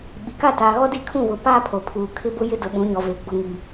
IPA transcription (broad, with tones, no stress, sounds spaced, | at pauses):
ɓ i˨ k a˦˨ t aː˨ ɣ ɔ˦ d i˦ kʰ ũ˦˨ β ʊ˨˦ p aː˦ pʰ o˨ pʰ uː˨ kʰ ɪ˦ b ʊ˦ j ɪ˦ d ʊ˨ ɓ ũ˨˦ ɲ ɔ˨ v e˨ ɡ͡b ʊ˨ ŋ i˨